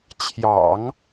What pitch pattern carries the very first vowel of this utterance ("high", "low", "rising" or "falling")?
low